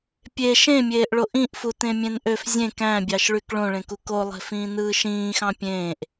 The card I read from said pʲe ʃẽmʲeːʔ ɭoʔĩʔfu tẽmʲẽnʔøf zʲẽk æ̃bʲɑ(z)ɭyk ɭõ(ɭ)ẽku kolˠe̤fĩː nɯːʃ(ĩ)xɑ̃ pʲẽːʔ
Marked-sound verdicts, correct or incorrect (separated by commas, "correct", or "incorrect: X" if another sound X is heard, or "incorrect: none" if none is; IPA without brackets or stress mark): incorrect: ʃ, correct, incorrect: ĩː